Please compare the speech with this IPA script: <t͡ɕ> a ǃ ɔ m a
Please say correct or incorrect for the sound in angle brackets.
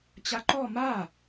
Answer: correct